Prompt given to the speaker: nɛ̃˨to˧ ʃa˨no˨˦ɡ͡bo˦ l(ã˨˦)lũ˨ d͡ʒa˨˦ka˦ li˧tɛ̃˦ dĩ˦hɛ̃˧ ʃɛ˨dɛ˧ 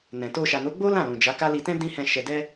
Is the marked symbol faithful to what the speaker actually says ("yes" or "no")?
no